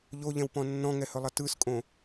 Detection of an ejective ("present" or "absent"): present